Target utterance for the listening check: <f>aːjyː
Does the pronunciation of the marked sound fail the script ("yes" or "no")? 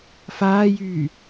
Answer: no